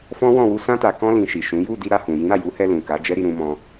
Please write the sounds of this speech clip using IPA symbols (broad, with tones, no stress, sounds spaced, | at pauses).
f ɔ̃˦ w ɔ̃˦˨ w u˧ s ã˧ t a˨ k ɔ̃˧ l ĩ˨ ʃ i˨ ʃ ũ˨˦ j u˦˨ d i˧ ɾ a˧ h ũ˨ j ĩ˨˦ ɾ a˦˨ j u˨˦ h ɛ˧ l ũ˨ k a˨˦ d͡ʒ ɛ˦ ɾ i˧ ɾ ũ˧ m ɔ̃˧